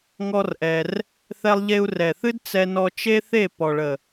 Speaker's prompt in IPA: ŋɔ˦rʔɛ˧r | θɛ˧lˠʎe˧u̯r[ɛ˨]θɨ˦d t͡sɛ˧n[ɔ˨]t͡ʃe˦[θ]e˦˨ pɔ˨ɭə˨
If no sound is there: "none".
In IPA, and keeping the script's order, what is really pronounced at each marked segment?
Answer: ɛ˨, ɔ˧, θ

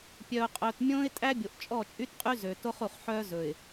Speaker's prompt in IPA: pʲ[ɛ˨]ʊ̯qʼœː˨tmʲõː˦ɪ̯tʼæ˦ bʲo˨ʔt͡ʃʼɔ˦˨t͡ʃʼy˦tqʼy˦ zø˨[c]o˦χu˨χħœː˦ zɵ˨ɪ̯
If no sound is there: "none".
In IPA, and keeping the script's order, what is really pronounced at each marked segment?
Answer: œ˨, t

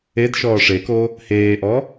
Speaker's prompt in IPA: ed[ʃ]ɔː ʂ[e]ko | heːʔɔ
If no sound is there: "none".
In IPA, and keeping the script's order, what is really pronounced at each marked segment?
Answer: ʃ, e

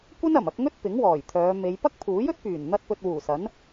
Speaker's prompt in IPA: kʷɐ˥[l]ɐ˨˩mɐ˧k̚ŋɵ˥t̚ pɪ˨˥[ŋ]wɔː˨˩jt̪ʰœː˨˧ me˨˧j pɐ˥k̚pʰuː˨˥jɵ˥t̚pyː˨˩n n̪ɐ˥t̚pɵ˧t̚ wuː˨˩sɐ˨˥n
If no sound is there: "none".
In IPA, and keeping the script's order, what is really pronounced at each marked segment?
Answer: n, ŋ

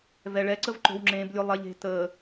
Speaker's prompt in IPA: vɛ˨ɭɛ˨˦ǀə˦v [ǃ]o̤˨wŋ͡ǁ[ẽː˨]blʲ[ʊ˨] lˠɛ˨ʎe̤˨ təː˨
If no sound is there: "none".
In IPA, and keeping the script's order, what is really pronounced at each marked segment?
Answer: ǃ, ẽː˨, ʊ˨

